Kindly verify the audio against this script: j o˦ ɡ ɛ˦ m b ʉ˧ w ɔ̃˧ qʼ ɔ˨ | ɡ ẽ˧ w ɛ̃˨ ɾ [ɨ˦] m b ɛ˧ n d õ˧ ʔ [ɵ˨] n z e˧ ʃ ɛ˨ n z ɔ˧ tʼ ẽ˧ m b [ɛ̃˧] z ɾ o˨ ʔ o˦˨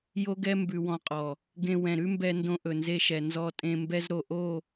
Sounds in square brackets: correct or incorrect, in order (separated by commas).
incorrect, correct, incorrect